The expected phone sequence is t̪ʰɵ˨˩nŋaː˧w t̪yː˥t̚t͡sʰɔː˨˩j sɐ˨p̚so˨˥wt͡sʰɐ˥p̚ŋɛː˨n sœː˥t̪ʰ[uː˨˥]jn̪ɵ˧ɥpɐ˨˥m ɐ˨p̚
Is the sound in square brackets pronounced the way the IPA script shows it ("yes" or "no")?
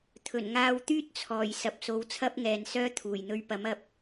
no